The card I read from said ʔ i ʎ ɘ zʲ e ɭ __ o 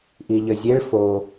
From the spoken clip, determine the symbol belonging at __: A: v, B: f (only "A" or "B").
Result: B